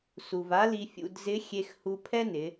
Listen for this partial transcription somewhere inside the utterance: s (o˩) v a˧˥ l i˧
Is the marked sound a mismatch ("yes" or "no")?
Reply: yes